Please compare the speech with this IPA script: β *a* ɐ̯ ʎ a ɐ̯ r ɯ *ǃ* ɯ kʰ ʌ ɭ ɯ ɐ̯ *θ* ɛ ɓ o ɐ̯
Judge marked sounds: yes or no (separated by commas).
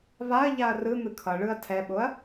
yes, no, no